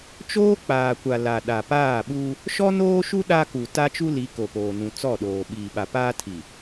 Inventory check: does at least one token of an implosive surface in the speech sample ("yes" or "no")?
yes